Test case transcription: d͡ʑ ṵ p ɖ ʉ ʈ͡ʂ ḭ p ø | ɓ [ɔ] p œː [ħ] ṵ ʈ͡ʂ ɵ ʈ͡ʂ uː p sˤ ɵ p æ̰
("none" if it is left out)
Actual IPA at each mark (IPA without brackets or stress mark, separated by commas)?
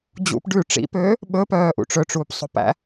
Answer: ɵ, ʔ